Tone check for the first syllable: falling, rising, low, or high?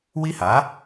high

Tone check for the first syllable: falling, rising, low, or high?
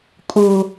high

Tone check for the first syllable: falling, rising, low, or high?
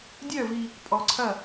falling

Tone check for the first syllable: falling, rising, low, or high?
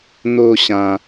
falling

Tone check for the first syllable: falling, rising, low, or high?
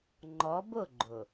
rising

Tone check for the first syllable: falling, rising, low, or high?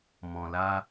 low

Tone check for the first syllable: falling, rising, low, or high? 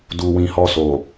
low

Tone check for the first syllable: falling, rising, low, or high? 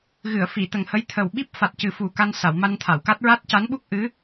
low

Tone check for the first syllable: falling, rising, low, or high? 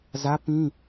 high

